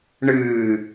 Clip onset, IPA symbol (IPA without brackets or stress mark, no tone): ɳ